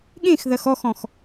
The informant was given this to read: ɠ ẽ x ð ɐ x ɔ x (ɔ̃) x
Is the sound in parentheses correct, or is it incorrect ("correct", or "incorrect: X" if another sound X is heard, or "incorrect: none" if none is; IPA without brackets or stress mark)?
correct